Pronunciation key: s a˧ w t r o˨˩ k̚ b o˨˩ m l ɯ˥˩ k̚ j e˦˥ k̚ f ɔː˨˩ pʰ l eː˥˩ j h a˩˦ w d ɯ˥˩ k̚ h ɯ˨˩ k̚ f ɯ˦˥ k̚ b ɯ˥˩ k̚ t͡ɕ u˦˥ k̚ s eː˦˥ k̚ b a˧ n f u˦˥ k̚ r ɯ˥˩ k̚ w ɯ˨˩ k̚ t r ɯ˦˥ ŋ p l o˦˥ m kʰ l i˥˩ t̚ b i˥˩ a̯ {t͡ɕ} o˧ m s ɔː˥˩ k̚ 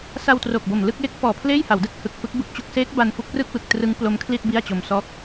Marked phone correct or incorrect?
correct